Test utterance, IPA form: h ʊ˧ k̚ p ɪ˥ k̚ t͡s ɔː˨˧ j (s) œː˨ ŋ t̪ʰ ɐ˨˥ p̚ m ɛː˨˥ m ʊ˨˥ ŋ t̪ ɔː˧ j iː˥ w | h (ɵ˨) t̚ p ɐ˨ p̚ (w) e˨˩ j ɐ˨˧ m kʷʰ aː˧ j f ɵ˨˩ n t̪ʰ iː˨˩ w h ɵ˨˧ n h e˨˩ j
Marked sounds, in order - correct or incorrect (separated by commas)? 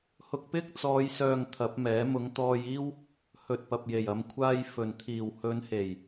correct, correct, incorrect